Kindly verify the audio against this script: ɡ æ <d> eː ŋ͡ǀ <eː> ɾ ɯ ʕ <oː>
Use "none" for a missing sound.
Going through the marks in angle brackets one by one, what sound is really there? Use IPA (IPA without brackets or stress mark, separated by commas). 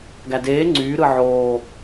d, yː, oː